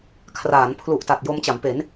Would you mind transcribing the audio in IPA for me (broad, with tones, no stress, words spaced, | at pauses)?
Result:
kʰraː˩˦npʰlu˨˩ʔta˨˩t̚ jo˧mt͡ɕa˩˦mpe˩˦n